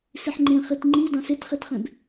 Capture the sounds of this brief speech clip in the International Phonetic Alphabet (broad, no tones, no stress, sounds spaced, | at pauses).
s i ħ ŋ͡ǃ ẽ χ i t ŋ͡ǃ i d ɑ̃ s e t χ i t χ ẽ b